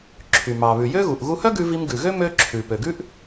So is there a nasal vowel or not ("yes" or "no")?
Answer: no